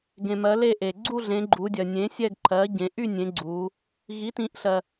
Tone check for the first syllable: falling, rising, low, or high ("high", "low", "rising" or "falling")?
low